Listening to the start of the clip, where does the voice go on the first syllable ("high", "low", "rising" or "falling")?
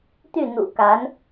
falling